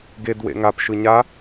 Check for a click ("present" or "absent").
absent